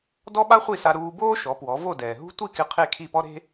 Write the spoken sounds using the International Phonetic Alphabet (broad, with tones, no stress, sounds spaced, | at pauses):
d ɔ˥ ɓ a˥ χʷ i˥˩ s a˧ ɾ uː˧ b oː˥ ʃ ɔ˩˥ p w ɔ˩˥ v o˥˩ d ɛː˩ ɦ ṳ˥ tʷ i˥˩ k ɪ˧ qʰ e˥˩ kʰ i˥˩ p ɔ˥ ɾ e̤˥